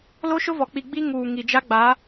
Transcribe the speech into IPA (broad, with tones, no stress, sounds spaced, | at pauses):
l o˦ ʃ ʊ˦ v ɔ˨ k͡p i˨ ɡ͡b i˦ ŋ uː˨ ŋ i˨ d͡ʒ a˦ ɡ͡b a˨˦